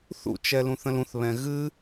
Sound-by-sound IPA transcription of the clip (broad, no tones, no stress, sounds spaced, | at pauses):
θ ṵ t͡ʃ ɛ l ũ θ ə̃ l ũ θ β ɛ̃ ɣ ɨ